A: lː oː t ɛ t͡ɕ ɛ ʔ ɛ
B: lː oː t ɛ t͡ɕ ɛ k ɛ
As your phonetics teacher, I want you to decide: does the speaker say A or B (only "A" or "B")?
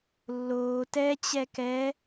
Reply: B